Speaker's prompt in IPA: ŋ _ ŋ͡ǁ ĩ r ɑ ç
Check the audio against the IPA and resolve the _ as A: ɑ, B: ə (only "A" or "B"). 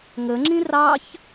B